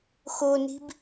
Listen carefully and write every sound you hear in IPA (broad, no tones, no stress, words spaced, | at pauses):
xoni̤b